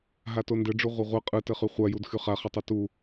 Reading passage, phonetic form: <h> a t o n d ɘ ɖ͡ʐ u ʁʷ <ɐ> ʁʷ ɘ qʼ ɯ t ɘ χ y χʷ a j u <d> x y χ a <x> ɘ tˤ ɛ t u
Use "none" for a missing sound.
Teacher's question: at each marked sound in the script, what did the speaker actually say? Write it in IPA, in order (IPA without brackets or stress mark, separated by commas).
ɦ, ɐ, d, χ